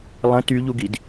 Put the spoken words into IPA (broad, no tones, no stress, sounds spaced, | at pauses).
lˠ ə̃ t y ʎ u ɡ i d